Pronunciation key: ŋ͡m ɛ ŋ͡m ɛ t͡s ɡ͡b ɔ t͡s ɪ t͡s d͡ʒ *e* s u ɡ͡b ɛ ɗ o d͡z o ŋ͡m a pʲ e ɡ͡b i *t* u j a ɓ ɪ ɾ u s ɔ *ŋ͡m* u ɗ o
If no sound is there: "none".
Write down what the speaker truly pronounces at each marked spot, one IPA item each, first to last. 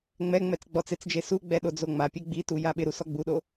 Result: e, t, ɡ͡b

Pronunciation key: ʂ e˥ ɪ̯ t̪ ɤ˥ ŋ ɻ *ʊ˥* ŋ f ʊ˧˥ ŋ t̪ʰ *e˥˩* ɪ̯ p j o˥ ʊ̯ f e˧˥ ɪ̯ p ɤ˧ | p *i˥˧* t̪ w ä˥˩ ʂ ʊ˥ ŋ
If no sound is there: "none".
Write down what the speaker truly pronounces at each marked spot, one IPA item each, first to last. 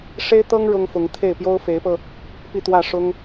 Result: ʊ˥, e˥˩, i˥˧

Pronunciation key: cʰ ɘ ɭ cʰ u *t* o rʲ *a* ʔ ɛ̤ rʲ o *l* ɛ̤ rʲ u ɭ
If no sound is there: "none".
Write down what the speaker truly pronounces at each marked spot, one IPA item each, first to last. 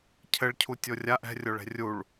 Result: tʲ, a, ɭ

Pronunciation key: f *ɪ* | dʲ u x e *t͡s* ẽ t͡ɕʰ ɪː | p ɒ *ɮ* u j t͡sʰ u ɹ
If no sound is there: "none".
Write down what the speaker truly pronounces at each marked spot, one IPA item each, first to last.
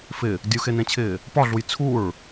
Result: ɪ, n, ɮ

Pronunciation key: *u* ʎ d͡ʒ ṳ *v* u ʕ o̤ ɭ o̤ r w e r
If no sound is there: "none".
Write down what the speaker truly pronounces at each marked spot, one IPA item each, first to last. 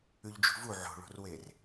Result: ʉ, v

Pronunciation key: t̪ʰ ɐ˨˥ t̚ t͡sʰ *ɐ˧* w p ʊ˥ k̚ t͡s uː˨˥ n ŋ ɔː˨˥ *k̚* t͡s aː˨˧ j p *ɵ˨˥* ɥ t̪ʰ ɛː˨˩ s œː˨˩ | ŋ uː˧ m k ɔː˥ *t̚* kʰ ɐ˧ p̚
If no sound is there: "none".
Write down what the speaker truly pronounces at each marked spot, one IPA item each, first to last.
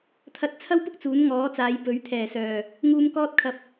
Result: ɐ˥, none, ɵ˨˥, t̚

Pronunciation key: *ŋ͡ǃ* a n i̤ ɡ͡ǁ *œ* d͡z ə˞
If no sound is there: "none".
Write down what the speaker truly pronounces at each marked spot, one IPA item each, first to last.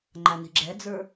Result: ŋ͡ǃ, ɛ

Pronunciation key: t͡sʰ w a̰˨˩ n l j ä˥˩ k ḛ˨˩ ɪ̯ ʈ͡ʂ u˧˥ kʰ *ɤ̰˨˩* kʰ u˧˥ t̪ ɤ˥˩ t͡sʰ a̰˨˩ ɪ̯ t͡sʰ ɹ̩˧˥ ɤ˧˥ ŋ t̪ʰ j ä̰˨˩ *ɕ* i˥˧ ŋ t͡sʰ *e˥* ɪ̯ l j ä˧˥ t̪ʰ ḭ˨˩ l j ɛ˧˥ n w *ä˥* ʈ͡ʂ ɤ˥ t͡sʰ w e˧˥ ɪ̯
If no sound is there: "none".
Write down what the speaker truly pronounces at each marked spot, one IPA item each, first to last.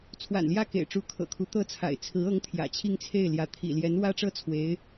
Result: ɤ̰˨˩, t͡ɕʰ, e˥˩, ä˥

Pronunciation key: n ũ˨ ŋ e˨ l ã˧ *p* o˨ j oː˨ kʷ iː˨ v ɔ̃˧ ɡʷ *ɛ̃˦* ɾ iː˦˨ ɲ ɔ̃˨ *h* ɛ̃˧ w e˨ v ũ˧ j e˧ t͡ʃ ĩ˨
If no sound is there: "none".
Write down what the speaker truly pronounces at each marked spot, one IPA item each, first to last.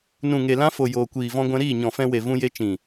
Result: f, ɛ̃˧, f

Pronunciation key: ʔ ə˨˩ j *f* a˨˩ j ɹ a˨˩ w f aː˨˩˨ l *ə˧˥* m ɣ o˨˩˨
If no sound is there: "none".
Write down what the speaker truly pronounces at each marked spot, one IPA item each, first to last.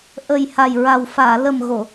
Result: h, ə˨˩

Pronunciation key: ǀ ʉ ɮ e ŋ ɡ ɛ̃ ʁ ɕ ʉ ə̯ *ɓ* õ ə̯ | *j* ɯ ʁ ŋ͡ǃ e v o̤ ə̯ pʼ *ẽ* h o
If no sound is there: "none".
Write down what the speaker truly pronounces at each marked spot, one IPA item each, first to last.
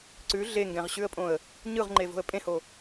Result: pʼ, ɲ, ẽ

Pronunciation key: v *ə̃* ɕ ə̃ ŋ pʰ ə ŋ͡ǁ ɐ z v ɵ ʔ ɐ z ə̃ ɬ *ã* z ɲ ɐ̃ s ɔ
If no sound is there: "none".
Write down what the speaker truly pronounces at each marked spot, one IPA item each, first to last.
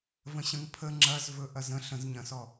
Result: ə̃, ə̃

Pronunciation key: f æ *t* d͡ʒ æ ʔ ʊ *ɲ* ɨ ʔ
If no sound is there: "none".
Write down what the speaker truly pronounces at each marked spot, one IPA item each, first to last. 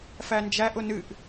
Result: n, n

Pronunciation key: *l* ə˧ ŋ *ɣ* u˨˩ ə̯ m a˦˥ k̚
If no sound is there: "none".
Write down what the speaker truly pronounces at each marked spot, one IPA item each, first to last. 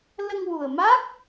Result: l, w

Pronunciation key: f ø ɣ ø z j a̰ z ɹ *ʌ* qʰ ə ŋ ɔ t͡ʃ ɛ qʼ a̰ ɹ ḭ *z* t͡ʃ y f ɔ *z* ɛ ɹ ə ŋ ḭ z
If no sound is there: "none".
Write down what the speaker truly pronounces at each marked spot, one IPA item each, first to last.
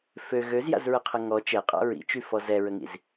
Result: ə, none, z

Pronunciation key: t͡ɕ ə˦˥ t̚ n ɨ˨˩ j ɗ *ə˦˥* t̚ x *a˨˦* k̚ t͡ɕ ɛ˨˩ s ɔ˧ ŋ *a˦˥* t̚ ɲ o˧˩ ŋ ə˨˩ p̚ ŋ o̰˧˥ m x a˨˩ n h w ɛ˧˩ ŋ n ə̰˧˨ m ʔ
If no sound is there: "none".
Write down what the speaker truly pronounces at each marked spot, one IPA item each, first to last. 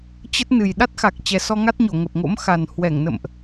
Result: a˦˥, a˨˩, a˦˥

